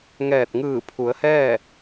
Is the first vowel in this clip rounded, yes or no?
no